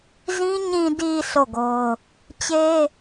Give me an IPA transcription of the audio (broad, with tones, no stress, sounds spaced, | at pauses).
z ĩ˦ ɲ ĩ˨ d i˨ sʰ o˦˨ ɡ o˦ ʊ̯ | t͡ɕ e˦